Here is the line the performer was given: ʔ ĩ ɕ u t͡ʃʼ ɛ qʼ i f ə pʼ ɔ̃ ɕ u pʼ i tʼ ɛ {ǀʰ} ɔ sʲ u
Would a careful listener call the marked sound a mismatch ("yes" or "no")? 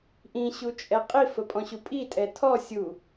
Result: yes